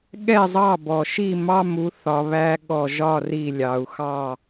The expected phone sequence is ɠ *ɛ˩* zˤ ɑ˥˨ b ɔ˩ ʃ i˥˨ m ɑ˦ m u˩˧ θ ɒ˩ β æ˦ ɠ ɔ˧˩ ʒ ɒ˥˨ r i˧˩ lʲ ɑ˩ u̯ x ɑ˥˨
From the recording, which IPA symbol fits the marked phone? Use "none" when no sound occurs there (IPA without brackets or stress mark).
ɛ˥˨